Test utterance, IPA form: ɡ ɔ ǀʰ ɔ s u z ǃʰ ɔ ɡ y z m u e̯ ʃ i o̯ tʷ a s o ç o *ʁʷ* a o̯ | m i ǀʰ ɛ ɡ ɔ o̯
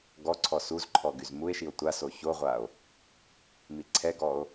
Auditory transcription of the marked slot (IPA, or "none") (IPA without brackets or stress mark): ʁʷ